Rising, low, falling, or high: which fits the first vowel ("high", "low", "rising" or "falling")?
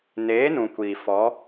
rising